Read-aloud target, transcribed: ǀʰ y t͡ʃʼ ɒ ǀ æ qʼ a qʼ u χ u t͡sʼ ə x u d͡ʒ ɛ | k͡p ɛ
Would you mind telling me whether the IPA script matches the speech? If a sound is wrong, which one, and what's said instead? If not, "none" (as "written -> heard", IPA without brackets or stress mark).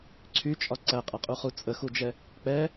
none